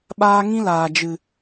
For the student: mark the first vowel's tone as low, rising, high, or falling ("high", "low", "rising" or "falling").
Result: high